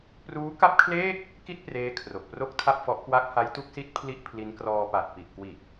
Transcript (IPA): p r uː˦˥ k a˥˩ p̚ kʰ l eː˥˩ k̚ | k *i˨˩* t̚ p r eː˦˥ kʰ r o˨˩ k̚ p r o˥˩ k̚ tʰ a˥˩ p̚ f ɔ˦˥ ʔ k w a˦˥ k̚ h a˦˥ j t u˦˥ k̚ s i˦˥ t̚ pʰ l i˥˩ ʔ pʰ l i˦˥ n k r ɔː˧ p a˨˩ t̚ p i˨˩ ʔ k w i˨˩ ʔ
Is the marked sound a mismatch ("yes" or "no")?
yes